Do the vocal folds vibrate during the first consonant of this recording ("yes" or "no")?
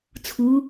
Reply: no